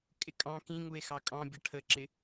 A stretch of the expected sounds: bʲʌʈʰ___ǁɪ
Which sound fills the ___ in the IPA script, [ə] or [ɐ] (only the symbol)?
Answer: ə